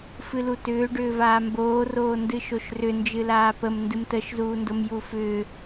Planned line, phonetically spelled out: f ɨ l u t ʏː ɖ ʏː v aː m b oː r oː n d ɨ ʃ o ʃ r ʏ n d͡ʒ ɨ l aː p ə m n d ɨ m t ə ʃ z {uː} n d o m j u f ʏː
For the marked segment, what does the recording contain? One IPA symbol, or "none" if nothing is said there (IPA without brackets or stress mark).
uː